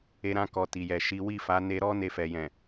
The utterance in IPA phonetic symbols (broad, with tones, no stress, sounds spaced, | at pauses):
e˧ ɾ ã˧ k ɔ˨ t i˨ j ɛ˨ ʃ i˨˦ w i˦˨ f a˨˦ n e˧ ɾ ɔ˦ n e˧ f ɛ˨ j ɛ̃˨